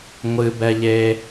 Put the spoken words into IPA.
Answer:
ŋʷ ɨ b ɛ ʎ e

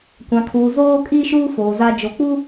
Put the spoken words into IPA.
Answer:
kʷ ã˨ kʰ uː˨ z oː˦ kʼ iː˦ ʃ uː˦ f oː˨ z a˦ d͡ʒ o˨ k͡p u˦

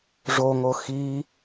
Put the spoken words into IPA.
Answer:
ʐ o ŋ o x i

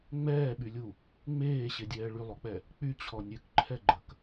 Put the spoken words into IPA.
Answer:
ŋ͡m ɛː ɓ y lʲ u | ŋ͡m eː ɕ e dʲ ɛː ɭ y lˠ o k͡p ɛ | k͡p y t͡ɕʰ ɔ nʲ ø k ǃʰ ɛ ɡ͡ǃ ə k

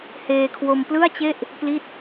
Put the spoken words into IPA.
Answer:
h eː˧ kʰ w o˧ m p l ɯ˥˩ a̯ t͡ɕ e˥˩ ʔ | p l i˥˩ t̚

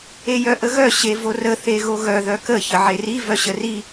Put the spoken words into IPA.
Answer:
e j œ ʔ ə ɣ œ ɕ e v o r ə θ e ɣ o ɣ œ ð œ k ə ç ə ʕ e r i v œ ɕ ə r i

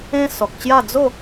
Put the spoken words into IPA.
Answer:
ẽ˦ s ɔ˨ k̚ t͡ɕ j a˥˧ d͡z o˥˧

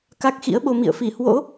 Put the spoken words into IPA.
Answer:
k a˦˥ k̚ x ḭ˧˥ ə̯ ɓ o˧ m ḭ˧˨ ə̯ f i˧˩ h w o̰˧˥

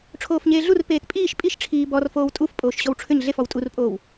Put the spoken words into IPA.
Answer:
ʈ͡ʂʰ oː f ɲ eː ɮ u r p eː t pʼ iː ʃ pʼ i ʃ ʈ͡ʂʰ iː b ɔ r f oː w tʼ u f pʼ oː ʃ ɕ ɔ w ʈ͡ʂʰ ʏ ɲ ɮ e f ɔ w tʼ u r pʼ oː w

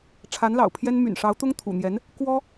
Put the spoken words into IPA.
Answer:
ʈ͡ʂʰ a˧˥ n l ɑ̰˨˩ ʊ̯ pʰ j ɛ˥ n m y̰˨˩ n ʂ ɑ˧˥ ʊ̯ t̪ ʊ˥ ŋ t̪ʰ ṵ˨˩ n̪ j ɛ˧˥ n | k w ɔ˥

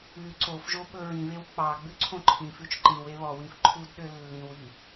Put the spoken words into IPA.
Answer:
ʉ ǀ o f ʒ o ɓ ɵ ɹ ĩ β e w k͡p ɑ ɡ͡b ʉ ǀʰ õ ǃʰ ĩ f ʉ t͡ʃ ǃ ĩ w e β ɔ w ĩ f ǃʰ u d ɗ ø lː ĩ w i

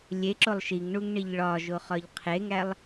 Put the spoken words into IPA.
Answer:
lʲ e ǁ o lˠ ʃ i ŋ ɳ u ŋ ɳ i ʎ ɭ ɒ ʒ o χ ɒ ʎ qʰ e ŋ æ lˠ

